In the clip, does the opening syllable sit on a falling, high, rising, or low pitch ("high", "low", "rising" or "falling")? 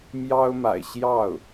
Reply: high